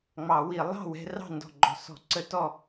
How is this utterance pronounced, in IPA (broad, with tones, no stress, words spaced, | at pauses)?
ŋ͡mɑ˨˩˦wi˨˩˦ lˠɑ̤˥˨ wɛ̤˦rɑ̤˥˨ ndɔ̤˨˩ɡ͡ǃɔ̤˨˩sɔ̤˨˩˦ǀə˨˩˦ tɔ˥˨